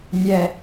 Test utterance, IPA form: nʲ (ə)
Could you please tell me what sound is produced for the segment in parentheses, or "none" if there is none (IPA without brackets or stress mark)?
ɛ